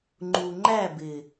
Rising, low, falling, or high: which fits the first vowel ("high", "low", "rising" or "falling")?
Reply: low